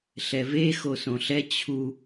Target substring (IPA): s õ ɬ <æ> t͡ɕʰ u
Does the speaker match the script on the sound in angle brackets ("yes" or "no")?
no